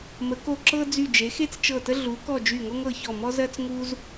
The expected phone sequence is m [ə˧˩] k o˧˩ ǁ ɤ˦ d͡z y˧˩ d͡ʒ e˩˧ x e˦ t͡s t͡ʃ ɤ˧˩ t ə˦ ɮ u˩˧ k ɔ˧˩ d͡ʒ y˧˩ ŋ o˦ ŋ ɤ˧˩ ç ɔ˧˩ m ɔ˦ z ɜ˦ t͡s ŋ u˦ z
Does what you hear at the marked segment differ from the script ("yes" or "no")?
yes